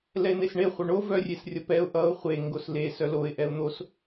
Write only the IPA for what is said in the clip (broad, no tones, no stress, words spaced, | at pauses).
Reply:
lɛɪ̯n̪esɳe χʷœɳo vœrʲesrʲʌpɛʊ̯ ʔʌʊ̯ χʷe ŋɡosle sœloɪ̯ ʔɛʊ̯n̪os